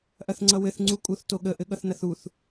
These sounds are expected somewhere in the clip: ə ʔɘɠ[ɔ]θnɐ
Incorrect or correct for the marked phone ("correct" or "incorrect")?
incorrect